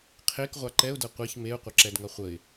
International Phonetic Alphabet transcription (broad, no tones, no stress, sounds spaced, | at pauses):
qʰ e k ʁʷ a ǃ ɛ ʊ̯ d ɤ qʷ e ç m e ʊ̯ qʷ ʌ ǁ ɛ d ŋ ʌ χʷ ə ɪ̯